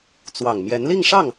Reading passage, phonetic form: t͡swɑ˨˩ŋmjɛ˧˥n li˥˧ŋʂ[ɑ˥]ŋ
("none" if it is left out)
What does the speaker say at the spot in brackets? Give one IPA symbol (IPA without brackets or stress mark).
ɑ˥˩